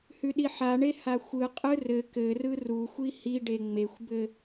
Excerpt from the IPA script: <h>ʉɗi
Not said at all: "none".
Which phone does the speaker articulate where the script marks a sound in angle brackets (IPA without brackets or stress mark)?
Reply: h